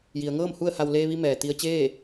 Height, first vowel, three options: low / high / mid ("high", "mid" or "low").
high